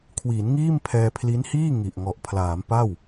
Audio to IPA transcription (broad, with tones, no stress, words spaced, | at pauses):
kʰwiː˩˦nŋiː˥˩m pʰɛː˧pʰli˦˥nhiː˥˩ ŋi˨˩ʔ ŋɔ˨˩ʔpʰlaː˩˦m pa˥˩w